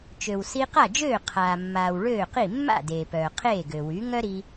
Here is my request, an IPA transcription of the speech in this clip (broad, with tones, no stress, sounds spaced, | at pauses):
t͡ʃ ø˩ w s i˧ q a˥˩ d͡ʒ øː˥˩ qʰ aː˩ mː aː˩ w ɭ øː˥˩ q i˥˩ mː a̰˥˩ d eː˩ p œː˩ qʰ eː˥˩ ɡ ø˩ w y˩˥ ŋ œ˥ ɾ i˧